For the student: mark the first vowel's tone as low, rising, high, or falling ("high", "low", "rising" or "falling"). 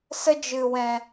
high